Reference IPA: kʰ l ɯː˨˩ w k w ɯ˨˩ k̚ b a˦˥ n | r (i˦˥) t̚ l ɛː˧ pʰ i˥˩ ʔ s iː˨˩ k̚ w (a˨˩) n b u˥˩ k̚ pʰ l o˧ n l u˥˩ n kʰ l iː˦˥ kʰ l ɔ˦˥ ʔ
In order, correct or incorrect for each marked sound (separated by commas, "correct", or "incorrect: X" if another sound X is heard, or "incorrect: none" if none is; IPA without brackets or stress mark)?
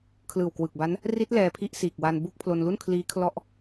correct, incorrect: a˧